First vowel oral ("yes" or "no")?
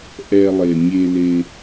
yes